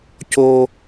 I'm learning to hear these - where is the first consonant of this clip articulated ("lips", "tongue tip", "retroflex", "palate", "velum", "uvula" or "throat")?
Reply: palate